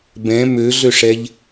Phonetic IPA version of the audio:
b ɛ̃ m ø ɮ ø ʂ ɛ ʎ

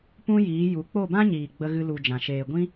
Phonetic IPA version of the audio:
p ũ˦ j iː˨˦ j u˨˦ k͡p o˦˨ b ã˦ ɲ iː˨ ɡ͡b ə˦ ɣ ɨ˦ l u˧ d͡ʒ ã˨ ʃ eː˨ ɡʷ ĩ˦

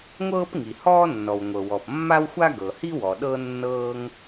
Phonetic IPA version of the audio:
ŋʷ ɤː˥ p ŋ i˩ h ɔː˥ nː ɔ˩ w ŋʷ ɤ˩ w ɔ˩ p mː a˥ w xʷ a˥ ɡ ɤ˩ h i˥ w ɔ˩ ɗ ɤ˥ nː ɤː˥ ŋ

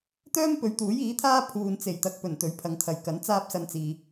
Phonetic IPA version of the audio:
t̪ œː˥ m p ɵ˨˧ ɥ t̪ uː˨˥ j iː˨˥ t̪ʰ aː˥ pʰ uː˨ n t͡s e˨˩ j t̪ ɐ˨ k̚ p ɵ˨˩ n t̪ ɵ˨˥ ɥ pʰ ɐ˨˧ ŋ t̪ʰ ɐ˨ j k ɐ˨˥ n t͡s aː˥ p̚ s ɐ˧ n t͡s iː˨

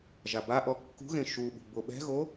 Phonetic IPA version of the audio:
ʒ a b a ʔ ɔ kː ṳ ɣ ẽ ʃ u ɓ ṳ b o ɓ ɛ̤ ɣ o

